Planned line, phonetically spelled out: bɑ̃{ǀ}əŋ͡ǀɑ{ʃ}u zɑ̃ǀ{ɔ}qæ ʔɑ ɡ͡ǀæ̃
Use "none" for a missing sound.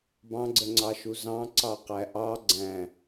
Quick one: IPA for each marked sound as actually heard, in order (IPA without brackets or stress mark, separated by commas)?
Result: ɡ͡ǀ, ʃ, ɑ